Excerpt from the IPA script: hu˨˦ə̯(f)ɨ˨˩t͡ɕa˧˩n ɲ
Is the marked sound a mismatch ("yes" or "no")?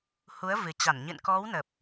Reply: yes